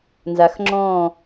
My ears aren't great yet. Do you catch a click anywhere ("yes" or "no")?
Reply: yes